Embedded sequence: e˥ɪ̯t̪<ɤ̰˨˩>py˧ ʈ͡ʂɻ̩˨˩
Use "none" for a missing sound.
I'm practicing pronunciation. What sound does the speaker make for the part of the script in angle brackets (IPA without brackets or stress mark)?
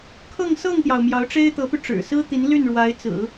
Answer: ɤ˧˥